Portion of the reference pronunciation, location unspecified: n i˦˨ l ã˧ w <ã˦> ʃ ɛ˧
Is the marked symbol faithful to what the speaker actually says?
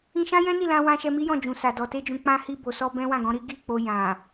no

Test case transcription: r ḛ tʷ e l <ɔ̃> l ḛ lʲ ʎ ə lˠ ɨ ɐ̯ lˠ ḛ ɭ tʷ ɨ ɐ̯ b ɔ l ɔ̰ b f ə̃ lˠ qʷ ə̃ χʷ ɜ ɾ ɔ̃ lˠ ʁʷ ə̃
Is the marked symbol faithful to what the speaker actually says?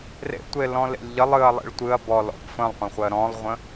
yes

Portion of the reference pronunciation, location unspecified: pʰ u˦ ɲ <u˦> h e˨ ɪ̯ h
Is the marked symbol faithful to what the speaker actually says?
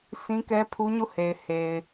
no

